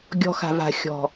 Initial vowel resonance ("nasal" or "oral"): oral